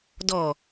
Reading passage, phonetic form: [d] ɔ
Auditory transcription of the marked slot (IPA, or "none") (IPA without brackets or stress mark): d